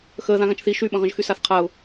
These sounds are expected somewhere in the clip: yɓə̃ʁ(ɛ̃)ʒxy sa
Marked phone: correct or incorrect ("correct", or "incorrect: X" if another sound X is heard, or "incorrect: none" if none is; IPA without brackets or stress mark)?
incorrect: ə̃